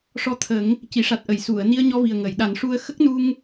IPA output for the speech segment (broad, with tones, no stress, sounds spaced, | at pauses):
ʂ ɔ˧ t̪ʰ ə˨˩˦ ŋ | c i˨˩˨ ʂ a˨˩ t̚ ʔ ə˨˩˨ j s u˨˩˨ ə̯ n i˧ ə̯ ɲ ɔ˧ v i˨˩ ə̯ ŋ ə˨˩˨ j ɗ a˨˩˦ n ʂ u˧ ə̯ x ə˦˥ k̚ n u˧ ŋ